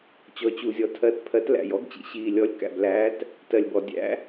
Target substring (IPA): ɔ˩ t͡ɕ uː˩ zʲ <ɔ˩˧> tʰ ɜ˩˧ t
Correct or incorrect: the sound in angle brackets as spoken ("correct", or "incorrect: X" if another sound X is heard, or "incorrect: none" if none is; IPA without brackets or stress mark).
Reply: incorrect: ɔ˩